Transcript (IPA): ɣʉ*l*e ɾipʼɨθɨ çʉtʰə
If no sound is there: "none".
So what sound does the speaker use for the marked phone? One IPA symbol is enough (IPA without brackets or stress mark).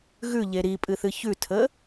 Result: ʎ